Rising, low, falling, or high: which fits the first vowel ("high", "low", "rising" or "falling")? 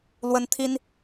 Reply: high